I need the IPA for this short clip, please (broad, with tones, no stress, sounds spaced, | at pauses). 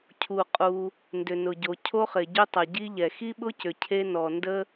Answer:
cʰ u˩ qʼ u˩ | n d ʏ˩ n ʊ˩ ɟ o˩ cʰ o˥ χ ɪ˩ ɟ ʏ˥ tˤ ɐ˩ ɟ i˥ ʎ ɛ˩ x i˥ ɓ ʊ˥ c ʏ˩ cʰ e˥ n ɔ˩ n d ə˥